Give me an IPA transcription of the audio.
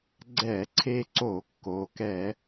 ɡ͡ǀ ɛ˧˩˧ ǀʰ e˧ ǀ o˧˩˧ kː o˩˧ k ɛ˧˩˧

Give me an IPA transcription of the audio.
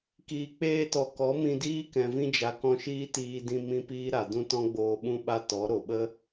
k iː˨ k͡p eː˧ t ɔ˨ k ɔ˨˦ m ĩ˧ d iː˦ k ɛ̃˨ v ĩ˧ d͡ʒ a˨ k ɔ̃˧ ʃ iː˦ t iː˧ d ĩ˧ m ĩ˦ p iː˦ ɾ a˨ d ũ˦ t ɔ̃˦ ɡ͡b oː˧ ɓ ũ˦ ɓ a˦ t ɔ˨˦ ɾ o˨ ɓ ə˦

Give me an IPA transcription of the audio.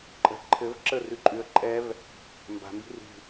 ǃʼ ə̤ ǃʰ ɘ v ǁ ə r ʉ ǃʼ ʉ ə̯ ǃʼ ɛ v | m b a̤ m b i̤ r i̤

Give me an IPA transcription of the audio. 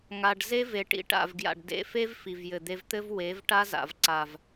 ŋ a˧ ɖ z e˦ v e˨ ʈ ḭ˨˦ ʈ a̰˨ v ɡ j a̰˨ ɖ d ḛ˧ f e˦ v f i˨ v j ɘ˨ d̪ e˧ v t̪ ɘ˦ v w e˨˦ v ʈ a˦ z a̰˨ v ǀ a˨ v

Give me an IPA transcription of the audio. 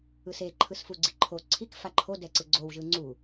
ɯ s e ǃʰ ɯ s f u ɡ͡ǀ i ǃʰ o ǀʰ i k f a ǃʰ o d ɛ ǀ ɯ ɡ͡ǀ o w ʒ ɯ ŋ͡ǀ u

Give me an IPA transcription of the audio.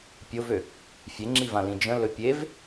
pʲ ʊ v ø | fʲ e ŋ͡ǁ i v ã l ĩ d͡ʒ ə̃ l ɵ pʲ e v

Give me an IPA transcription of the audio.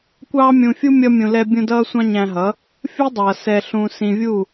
kʷ ɑː˦ mʲ ũ˧ fʲ u˦ mʲ ʌ˦ mʲ ũ˧ l ɛ˦ bʲ ũ˦ d ʌː˦ sʷ ɑ̃˦ ɲ æ̃˧ ɦ ʌ˨˦ | fʲ u˦ dˤ ʌː˨ s ɛ˧ ɬ ũː˧ s ĩ˧ vʲ u˦˨

